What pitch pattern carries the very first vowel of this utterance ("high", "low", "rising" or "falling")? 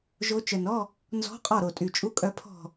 rising